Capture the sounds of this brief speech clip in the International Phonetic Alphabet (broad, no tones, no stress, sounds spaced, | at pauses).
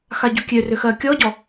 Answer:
x a ɟ u kʲ ø r ø x ɜ kʲ ɔ ɟ ɔ